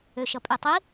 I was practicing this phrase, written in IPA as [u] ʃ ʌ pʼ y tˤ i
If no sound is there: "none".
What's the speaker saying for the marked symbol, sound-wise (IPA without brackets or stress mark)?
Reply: ø